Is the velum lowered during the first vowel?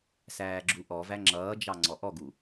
no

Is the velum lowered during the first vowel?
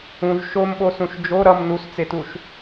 yes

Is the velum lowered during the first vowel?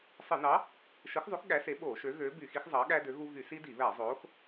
no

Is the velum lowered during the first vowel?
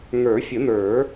no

